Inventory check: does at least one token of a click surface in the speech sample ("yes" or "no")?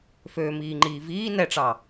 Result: yes